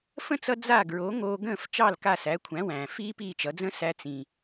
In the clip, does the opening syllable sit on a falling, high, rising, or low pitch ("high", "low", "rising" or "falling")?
high